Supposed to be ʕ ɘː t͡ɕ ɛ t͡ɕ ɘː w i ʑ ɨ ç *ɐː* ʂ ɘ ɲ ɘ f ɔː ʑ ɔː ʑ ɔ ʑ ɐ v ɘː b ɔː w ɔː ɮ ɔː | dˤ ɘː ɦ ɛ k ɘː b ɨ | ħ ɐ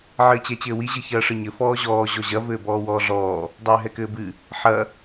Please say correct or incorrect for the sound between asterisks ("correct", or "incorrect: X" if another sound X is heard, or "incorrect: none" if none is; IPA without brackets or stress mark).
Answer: correct